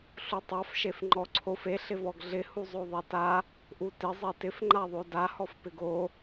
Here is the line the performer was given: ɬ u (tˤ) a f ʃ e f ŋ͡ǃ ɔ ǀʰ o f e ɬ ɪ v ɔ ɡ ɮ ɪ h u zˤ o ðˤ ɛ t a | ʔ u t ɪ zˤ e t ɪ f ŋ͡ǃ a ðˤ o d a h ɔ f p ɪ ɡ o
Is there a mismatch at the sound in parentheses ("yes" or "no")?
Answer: no